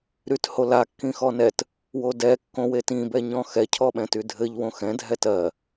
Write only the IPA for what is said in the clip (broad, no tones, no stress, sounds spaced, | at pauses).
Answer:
ɾ y t h o l a kː ĩ x ɔ n ɛ t | w o d ɛ kː õ w e t ĩ b ɛ ɲ ɔ̃ x ɛ cʰ ɔ ɓ ɛ̃ t y dʱ ɘ ʎ w õ x ɛ̃ dʱ ɛ t ɜ